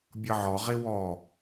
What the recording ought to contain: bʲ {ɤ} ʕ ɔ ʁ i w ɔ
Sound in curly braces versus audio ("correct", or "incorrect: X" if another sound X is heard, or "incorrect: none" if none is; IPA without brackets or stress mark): correct